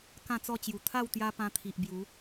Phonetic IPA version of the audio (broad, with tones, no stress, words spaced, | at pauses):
kã˥˧t͡sɔ˥˧t͡ɕju˨˩ t̪ʰa˥˧wt̪ja˧ pã˧t̪ʰi˨ʔbju˨˦